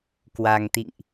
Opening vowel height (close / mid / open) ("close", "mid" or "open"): open